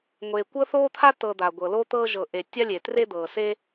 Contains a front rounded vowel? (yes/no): no